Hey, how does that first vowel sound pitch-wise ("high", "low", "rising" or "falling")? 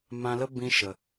low